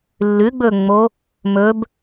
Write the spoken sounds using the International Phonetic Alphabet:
lː ʉ ɡ͡b ɵ ŋ͡m o | m ɵ b

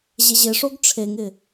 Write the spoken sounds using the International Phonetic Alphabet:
ʑ e ʑ ɪ ʂ o ɡ ʈ͡ʂʰ e ŋ ɪ

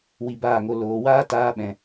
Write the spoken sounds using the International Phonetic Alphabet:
w i˧ b aː˦˨ ŋ o˧ l oː˨ w aː˦ t aː˧ ɓ ɛ̃˨

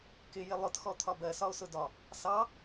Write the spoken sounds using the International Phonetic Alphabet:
k ɪ j ɪ lˠ ʊ t x ɔ t̪ʰ ɒ b ɜ s ɒ o̯ s ʊ d ɒ | s ɑ

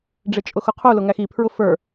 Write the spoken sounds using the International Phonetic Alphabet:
ɖ͡ʐ ɪ t͡ʃʼ ʊ x ʊ qʰ u l ʊ ŋ æ x i pʰ ɹ ʊ f ə˞

